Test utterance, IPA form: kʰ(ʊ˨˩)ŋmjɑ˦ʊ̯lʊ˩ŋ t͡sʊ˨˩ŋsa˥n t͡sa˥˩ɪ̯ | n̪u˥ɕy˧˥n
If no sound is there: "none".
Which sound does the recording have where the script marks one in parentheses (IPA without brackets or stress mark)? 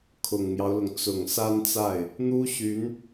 ʊ˨˩